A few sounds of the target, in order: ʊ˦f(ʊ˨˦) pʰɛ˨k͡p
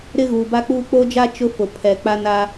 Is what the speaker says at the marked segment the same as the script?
no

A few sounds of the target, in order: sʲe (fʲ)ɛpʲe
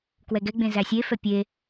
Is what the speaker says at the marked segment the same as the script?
no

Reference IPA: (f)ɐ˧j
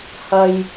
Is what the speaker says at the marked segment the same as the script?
no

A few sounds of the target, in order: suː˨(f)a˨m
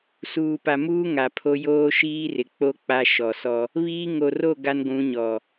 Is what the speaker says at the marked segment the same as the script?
no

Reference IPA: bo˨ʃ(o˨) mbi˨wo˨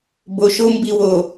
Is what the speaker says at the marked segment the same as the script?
no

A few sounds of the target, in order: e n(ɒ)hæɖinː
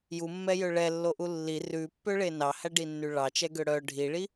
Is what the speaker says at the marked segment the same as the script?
no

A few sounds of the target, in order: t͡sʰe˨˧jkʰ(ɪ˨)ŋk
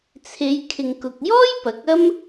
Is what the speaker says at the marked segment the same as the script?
yes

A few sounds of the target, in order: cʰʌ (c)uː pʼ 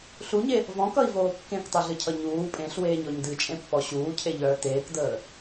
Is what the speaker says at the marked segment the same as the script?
no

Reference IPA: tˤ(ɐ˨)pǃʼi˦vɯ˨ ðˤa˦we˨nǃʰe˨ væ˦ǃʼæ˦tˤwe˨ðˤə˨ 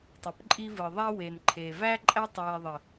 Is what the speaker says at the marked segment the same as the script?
no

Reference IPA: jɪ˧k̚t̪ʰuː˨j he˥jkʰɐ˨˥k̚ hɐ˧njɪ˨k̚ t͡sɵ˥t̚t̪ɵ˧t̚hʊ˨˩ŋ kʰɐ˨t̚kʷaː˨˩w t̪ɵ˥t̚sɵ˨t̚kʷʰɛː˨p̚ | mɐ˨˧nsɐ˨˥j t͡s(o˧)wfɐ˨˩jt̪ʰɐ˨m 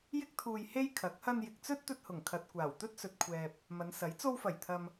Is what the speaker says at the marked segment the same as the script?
yes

